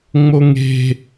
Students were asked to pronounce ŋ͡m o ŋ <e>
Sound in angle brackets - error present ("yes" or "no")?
yes